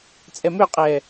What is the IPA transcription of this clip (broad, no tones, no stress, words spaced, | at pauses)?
t͡sʼɛmøqʼɛ